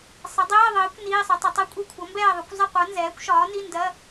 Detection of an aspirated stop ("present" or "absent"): present